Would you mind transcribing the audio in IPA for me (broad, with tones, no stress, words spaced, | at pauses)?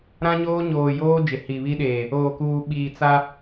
ɾã˦ɲoː˦ɲoː˨joː˦ d͡ʒɪ˨hi˨βi˦ɗeː˨ | oː˨kuː˨ɓiː˨ t͡sa˦